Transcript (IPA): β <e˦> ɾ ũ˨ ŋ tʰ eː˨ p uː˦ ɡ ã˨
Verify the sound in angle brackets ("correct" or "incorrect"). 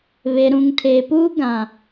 incorrect